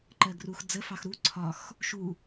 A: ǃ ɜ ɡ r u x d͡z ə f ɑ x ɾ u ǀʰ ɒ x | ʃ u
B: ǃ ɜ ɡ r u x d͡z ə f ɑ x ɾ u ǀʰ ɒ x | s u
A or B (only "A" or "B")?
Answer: A